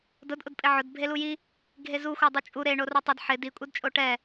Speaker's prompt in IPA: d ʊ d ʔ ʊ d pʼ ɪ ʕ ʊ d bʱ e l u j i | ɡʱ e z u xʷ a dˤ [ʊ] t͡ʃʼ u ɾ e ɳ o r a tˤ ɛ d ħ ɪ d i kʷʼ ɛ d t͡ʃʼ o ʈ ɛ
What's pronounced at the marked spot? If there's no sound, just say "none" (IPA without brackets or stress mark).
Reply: u